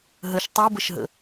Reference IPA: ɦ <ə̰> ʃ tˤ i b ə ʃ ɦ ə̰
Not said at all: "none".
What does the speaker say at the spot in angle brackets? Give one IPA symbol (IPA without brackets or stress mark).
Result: ə